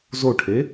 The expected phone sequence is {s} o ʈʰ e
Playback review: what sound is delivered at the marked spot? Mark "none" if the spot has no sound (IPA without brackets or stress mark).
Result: z